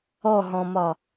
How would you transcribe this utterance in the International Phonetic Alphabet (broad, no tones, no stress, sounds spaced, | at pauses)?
ɔ ɦ ɔ̃ m ɒ